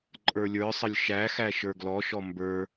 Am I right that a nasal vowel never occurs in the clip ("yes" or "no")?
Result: yes